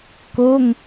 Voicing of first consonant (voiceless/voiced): voiceless